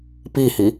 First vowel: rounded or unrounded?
unrounded